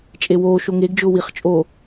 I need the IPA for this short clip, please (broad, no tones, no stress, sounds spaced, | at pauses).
t͡ʃʼ e w oː ʃ o ŋ e ɡ d͡ʒ ʊː w i χ t͡ʃʼ oː